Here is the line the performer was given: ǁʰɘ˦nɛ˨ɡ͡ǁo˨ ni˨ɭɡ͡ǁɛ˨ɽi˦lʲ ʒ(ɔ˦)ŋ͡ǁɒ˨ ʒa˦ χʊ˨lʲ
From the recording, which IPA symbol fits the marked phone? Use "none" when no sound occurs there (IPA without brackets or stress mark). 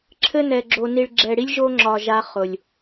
o˦